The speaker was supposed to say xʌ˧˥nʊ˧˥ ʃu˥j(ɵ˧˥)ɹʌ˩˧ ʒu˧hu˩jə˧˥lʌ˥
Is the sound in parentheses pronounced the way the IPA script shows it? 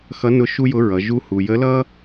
no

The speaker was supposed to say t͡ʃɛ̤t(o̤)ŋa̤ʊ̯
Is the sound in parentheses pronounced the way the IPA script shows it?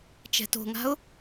yes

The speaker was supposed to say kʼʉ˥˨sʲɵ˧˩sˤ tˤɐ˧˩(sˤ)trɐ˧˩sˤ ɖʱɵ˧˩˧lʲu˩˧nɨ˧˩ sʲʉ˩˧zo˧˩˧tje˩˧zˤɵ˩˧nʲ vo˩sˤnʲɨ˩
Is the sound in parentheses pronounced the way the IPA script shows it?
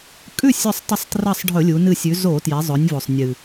yes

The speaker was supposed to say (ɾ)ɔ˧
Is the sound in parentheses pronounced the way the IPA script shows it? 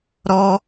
yes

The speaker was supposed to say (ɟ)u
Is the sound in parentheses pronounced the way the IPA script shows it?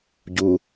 yes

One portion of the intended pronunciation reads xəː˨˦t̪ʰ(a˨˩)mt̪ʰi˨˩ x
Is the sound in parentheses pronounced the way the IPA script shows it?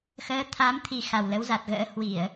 no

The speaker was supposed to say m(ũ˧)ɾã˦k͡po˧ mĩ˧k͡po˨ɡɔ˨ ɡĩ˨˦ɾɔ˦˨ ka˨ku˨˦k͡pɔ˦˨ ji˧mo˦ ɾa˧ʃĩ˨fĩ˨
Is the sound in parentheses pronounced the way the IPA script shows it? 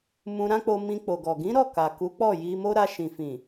yes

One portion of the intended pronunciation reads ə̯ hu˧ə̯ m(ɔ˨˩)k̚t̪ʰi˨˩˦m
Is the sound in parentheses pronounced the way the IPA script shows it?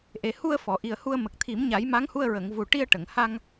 no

